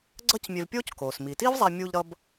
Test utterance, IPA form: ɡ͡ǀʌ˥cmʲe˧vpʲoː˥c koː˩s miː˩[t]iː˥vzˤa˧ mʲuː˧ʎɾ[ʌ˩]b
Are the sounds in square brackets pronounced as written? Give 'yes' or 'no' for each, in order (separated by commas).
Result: yes, no